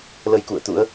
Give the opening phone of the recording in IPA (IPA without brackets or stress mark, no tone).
l